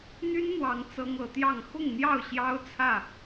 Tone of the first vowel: high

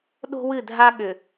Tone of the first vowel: high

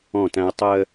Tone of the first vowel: falling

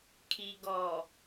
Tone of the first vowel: low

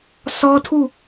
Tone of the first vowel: high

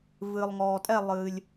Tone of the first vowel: low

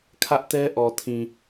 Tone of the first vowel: high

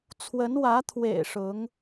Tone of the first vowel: rising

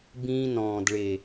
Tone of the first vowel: high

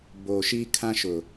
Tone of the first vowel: low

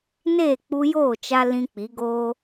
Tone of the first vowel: falling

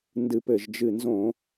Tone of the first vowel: low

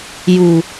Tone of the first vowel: low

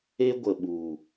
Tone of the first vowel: high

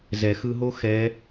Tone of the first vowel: low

